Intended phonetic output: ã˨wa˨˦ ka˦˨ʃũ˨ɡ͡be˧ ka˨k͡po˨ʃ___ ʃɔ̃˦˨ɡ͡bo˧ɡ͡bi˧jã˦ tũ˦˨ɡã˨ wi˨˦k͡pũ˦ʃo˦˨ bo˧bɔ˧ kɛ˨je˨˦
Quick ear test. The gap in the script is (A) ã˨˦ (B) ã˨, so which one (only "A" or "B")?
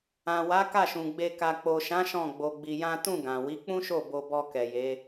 A